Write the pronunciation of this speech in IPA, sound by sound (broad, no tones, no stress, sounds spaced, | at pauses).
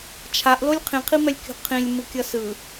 t͡ʃʰ a ʔ l o lʲ qʰ ĩ qʰ i m ɛ lʲ kʲ o̤ qʰ ĩ lʲ m ɯ kʲ ʌ s ɯ